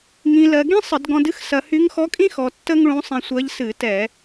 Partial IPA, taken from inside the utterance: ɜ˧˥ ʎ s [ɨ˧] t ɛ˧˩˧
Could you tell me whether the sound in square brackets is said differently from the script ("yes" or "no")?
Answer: yes